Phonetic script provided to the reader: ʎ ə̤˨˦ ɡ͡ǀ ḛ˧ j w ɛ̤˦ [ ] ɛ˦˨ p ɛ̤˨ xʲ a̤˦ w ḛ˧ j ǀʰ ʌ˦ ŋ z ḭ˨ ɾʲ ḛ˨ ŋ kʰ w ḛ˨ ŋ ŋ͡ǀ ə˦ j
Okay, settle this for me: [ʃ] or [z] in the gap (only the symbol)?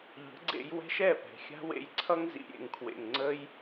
ʃ